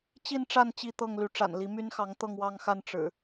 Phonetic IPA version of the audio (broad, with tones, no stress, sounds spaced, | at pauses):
t͡ɕ i˥˨ n ʈ͡ʂ a˥˨ n t͡ɕ i˥˨ t̪ ɤ˥˨ ŋ l y˨˦ ʈ͡ʂ a̰˨˩ n l i˨˦ m y˦ n x ɑ˨˦ ŋ t̪ ɤ˥˨ ŋ w ɑ˥˨ ŋ x a˥˨ n ʈ͡ʂ ɻ̩˨˩